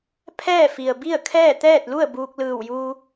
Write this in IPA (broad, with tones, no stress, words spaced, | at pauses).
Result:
pʰɛː˥˨fi˩ə̯bi˥˨ə̯kʰɛː˥˨ t̪ɛː˥˨t̚lu˥˨ə̯ buː˧k̚lɯː˧˩wjuː˧